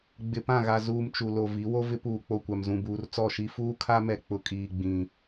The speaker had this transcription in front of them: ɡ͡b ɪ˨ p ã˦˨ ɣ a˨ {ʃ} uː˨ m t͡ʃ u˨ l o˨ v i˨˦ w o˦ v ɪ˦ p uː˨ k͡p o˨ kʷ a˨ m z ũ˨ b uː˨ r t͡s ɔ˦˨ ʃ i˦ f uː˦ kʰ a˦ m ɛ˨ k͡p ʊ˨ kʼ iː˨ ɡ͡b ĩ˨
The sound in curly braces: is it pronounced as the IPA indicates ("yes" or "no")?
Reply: no